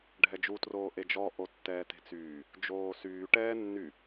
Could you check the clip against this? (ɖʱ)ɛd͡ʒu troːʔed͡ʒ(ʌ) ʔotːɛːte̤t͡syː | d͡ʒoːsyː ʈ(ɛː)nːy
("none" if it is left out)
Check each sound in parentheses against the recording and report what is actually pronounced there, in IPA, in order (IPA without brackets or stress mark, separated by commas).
ɖʱ, ɔ, ɛː